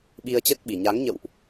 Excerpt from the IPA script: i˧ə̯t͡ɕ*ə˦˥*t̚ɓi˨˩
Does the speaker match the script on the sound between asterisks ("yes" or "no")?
yes